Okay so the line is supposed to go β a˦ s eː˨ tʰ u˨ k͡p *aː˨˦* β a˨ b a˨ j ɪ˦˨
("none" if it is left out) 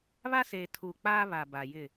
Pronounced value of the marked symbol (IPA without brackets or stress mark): aː˦